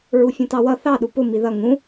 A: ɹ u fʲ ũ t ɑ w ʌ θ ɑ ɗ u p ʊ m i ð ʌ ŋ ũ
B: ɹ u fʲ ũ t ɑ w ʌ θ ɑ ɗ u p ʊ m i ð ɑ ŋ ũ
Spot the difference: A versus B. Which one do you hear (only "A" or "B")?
A